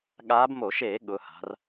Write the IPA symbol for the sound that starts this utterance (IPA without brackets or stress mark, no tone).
ɠ